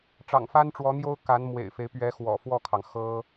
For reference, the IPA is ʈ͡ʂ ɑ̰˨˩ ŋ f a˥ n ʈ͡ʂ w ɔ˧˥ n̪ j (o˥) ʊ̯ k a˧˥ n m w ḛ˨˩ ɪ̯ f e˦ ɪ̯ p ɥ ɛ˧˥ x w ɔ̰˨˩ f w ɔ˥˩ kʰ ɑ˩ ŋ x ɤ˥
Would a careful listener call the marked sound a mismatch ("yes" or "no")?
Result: no